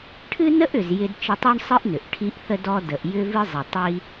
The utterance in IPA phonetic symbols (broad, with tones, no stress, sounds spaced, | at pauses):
ʈʰ ɨ˥ n ə˥ ʔ ʏ˩ z j ɪ˧ d t͡ʃ ə˧ tˤ o˥ ɳ sˤ ɨ˥ ʔ n ʏ˩ ʔ ʈʰ i˧ ʔ θ ə˧ d ɔ˧ d ə˩ ʔ j ʏ˧ v ɨ˧ zˤ ɪ˩ tˤ i˧